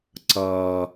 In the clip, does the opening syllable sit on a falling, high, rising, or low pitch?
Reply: low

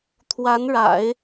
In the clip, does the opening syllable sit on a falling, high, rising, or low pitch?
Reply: rising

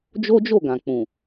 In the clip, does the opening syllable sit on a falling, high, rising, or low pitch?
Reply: high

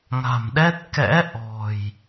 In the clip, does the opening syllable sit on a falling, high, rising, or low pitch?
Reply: low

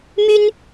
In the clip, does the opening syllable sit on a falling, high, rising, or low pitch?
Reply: high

